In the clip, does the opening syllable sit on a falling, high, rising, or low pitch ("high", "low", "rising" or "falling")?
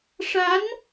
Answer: rising